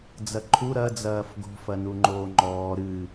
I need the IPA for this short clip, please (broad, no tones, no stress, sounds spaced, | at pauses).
d͡z ɐ ǃʰ u ɾ ɐ d͡z ɐː f ɡ o̤ f ɐ n u ŋ͡ǃ oː ŋ͡ǃ ɔː ɾ ɨ